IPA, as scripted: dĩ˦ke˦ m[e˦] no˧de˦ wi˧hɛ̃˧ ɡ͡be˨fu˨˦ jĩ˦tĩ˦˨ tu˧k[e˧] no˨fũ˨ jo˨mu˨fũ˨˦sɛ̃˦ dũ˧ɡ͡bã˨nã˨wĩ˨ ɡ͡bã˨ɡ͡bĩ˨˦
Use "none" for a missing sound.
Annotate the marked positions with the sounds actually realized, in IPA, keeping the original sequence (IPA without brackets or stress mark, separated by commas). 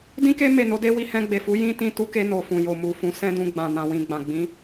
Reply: e˦˨, e˧